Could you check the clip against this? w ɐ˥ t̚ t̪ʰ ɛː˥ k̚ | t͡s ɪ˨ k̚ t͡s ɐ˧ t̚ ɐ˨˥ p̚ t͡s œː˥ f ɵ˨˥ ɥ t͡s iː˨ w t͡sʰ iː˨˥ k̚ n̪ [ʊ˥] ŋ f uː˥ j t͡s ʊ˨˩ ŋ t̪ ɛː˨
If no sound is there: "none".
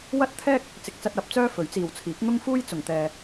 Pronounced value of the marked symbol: ʊ˥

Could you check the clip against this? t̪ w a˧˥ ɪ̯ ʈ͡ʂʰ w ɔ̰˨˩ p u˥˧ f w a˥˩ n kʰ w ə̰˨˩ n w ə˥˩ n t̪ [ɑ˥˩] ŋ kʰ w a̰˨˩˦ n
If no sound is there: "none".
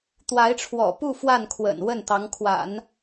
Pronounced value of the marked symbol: ɑ˧˥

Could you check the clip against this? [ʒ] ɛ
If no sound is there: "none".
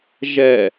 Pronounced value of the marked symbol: ʒ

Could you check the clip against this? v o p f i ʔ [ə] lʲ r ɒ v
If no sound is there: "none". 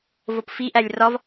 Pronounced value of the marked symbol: æ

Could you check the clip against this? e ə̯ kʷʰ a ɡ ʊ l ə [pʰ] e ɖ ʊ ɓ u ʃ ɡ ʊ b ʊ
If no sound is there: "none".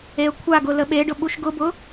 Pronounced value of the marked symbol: ɓ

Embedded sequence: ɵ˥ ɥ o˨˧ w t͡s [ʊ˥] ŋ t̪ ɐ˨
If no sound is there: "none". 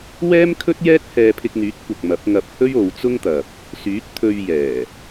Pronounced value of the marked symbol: ʊ˥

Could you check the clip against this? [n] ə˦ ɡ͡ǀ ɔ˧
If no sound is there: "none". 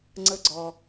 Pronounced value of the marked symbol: ŋ͡ǀ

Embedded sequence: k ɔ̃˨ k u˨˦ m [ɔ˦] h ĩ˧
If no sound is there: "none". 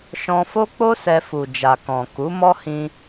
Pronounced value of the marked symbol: ɔ˦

